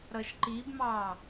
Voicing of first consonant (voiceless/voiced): voiced